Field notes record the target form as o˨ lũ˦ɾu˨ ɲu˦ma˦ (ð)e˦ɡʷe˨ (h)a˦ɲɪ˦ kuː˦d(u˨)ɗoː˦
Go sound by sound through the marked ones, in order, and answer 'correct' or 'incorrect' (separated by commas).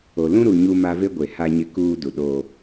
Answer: incorrect, correct, correct